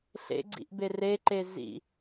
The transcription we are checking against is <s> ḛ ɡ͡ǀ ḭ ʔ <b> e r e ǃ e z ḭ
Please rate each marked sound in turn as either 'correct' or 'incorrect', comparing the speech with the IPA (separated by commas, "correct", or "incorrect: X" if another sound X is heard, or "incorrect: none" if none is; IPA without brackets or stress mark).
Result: incorrect: ɬ, correct